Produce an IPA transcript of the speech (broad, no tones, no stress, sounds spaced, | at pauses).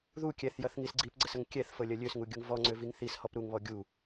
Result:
ð u kʲ ɛ θ j ɐ θ ŋ i s ɡ͡ǀ i p ɡ͡ǀ ə s ə ŋ kʲ ɛ θ f ɤ lʲ ɐ lʲ ø s ŋ u ɡʲ u ŋ v ɔ ŋ͡ǀ ø v i ŋ θ i s h ɔ p ɾ u ŋ β ɔ ɡʲ u